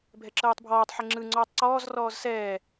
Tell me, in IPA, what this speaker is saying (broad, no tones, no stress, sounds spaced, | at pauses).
bʱ ɛ ǁ ɤː tˤ bʱ ɔː tˤ ħ e ŋ͡ǁ ɯ ŋ͡ǀ ɔː tˤ ǀ ɔː z r ɔː z s ɛː